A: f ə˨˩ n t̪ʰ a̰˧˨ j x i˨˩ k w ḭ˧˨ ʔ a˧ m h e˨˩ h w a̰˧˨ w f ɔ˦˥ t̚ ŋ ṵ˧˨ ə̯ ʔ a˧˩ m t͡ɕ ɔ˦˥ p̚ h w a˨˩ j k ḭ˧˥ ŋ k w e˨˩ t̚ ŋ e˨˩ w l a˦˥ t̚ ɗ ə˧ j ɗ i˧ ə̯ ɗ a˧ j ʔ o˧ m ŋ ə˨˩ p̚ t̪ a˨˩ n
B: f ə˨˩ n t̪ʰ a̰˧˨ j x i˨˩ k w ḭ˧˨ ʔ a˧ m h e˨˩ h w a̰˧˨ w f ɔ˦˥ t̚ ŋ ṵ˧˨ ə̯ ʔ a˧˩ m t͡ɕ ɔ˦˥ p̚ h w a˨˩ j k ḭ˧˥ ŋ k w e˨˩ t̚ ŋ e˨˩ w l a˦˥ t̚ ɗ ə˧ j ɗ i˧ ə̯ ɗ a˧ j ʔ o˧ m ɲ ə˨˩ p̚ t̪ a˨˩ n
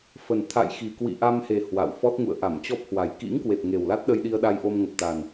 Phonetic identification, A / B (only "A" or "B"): A